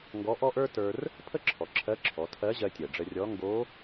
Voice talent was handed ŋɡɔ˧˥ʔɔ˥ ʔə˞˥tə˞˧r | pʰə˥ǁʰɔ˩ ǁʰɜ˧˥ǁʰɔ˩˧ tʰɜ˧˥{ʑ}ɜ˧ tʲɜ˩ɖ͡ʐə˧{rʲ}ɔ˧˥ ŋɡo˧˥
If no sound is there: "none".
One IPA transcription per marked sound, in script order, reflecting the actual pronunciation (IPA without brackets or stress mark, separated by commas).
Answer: ʑ, rʲ